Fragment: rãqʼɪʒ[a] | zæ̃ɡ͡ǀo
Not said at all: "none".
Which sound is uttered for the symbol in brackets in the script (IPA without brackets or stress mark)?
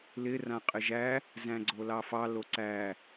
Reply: æ